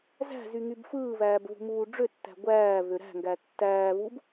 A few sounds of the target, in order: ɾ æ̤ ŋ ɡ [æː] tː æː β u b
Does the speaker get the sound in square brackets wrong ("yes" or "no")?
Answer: yes